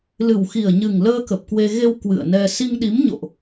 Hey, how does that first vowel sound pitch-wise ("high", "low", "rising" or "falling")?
low